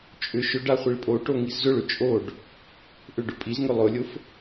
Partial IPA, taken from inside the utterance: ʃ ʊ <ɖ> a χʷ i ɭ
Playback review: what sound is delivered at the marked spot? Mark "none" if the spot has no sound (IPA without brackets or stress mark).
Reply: ɖ